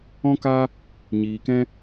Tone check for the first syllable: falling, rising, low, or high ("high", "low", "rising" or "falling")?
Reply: high